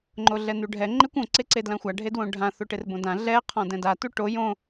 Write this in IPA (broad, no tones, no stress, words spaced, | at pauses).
ŋ͡ǃoɮɛnuɖʱɛ ŋ͡ǃekʷõ ǀeǀedlãxʷa ɖʱedwõɖʱã θoʈerbõdã ɮɛ qʰɔ̃dɛ̃da tuʈo jõ